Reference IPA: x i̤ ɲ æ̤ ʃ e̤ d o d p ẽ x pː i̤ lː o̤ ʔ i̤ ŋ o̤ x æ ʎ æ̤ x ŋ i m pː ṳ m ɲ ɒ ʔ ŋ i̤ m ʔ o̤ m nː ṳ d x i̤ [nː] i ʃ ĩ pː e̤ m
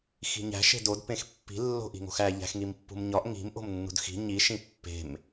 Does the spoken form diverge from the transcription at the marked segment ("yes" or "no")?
yes